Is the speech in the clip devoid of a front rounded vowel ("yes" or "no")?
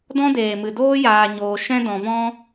yes